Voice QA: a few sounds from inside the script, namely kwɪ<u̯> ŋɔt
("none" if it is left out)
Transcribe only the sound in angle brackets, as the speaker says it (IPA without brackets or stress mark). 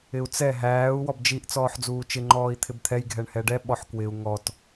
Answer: u̯